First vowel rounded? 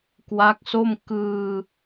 no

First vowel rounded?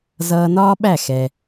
no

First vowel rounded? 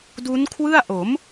yes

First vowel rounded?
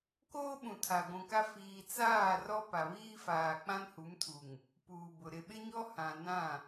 yes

